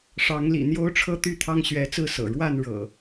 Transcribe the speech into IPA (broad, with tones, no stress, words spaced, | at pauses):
ʂɑ˨˦ŋlḭ˨˩ n̪jo˦ʊ̯ʈ͡ʂʰɤ˦ t̪y˥˨t̪ʰɑ˦ŋɕɥɛ˨˦t͡sɹ̩˥˨ sɤ̰˨˩ ɻwa˥˨n ɻɤ̰˨˩